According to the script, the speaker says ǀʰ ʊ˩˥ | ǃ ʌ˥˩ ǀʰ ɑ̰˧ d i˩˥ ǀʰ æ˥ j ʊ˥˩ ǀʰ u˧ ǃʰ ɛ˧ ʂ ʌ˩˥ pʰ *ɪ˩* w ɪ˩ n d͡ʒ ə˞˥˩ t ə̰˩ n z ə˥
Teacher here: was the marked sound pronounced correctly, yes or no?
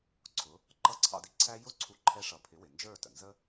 no